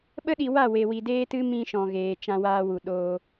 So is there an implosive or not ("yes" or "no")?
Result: yes